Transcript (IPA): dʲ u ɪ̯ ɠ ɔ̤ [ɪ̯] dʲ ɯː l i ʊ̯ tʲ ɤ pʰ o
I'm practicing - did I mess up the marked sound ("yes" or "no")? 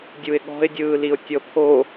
no